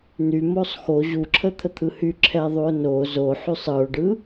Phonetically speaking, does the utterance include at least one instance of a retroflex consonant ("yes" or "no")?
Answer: yes